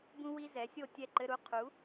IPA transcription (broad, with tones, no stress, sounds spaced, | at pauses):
b ũ˥ w i˥ z ɛ˩˥ sʲ o˥˨ tʲ ɛ˥˨ ǃ ɘ˧˥˧ ɾ u˥ qʰ u˩˥